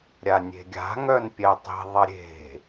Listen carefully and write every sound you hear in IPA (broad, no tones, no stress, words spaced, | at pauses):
ɾʲanʲe̤ɡʲa̤ ŋœnpʲɛtˤi̤ ðˤɐɾʲe̤